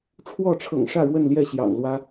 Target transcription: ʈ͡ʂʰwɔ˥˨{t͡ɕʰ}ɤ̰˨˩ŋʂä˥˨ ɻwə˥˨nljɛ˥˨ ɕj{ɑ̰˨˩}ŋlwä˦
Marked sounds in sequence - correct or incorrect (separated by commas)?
incorrect, correct